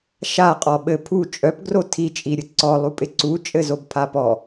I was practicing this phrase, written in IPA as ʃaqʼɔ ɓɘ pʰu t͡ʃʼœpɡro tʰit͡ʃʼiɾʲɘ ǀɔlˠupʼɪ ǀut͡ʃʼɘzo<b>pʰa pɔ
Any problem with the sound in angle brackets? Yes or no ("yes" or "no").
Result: no